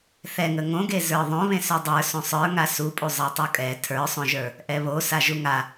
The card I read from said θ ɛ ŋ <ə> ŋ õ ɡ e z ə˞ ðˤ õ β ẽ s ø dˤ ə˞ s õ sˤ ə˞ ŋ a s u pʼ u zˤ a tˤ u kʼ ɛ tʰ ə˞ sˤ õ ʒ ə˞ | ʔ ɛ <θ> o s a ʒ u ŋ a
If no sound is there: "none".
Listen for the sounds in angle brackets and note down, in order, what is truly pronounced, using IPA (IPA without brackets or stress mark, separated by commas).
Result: ə, β